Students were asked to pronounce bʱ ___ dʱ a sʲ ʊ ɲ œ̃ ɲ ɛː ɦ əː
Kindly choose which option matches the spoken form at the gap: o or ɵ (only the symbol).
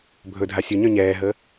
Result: ɵ